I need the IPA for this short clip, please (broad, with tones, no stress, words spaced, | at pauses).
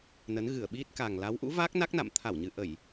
nə˨˦nɣɨ˧˩ə̯ ɓi˦˥t̚ka˨˩ŋ la˨˦wʔṵ˧˥va˦˥k̚ na˦˥k̚na̰˧˨m t̪ʰa˧˩wɲɨ˨˩ʔə˧˩˨j